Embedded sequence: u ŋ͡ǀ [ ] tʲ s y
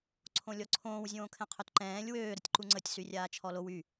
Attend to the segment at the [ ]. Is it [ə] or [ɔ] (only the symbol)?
ə